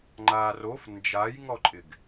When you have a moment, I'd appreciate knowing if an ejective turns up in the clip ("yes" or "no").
yes